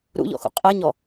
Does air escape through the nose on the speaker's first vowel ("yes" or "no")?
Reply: no